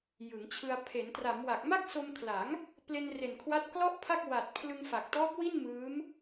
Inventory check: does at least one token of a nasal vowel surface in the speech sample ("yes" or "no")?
no